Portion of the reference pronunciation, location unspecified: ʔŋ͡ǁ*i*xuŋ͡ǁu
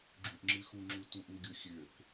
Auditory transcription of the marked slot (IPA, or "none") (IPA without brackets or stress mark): ɨ